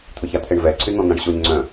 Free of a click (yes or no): no